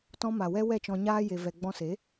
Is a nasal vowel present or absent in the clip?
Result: present